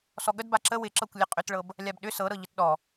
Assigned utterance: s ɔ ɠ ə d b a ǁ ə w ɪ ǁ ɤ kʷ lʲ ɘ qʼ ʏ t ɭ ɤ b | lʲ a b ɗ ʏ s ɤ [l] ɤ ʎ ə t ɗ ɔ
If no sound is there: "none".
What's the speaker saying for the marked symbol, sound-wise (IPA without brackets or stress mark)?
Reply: ɾ